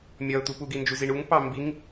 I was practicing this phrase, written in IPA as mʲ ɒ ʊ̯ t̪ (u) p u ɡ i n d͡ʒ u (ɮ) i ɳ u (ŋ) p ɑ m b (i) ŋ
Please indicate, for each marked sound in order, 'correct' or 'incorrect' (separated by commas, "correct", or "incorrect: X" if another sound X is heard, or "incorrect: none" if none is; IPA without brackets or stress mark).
correct, incorrect: z, correct, correct